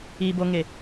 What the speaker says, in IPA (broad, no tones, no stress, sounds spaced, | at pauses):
i b o ŋ e